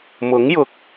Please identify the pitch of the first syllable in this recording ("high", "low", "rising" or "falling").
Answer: rising